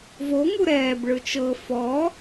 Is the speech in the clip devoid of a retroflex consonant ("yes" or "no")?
no